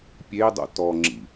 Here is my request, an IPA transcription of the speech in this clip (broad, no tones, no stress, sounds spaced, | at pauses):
pʲ e dˤ o̰ t ɔ ŋ͡ǁ ḭ